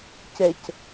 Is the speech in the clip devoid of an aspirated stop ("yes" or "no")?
yes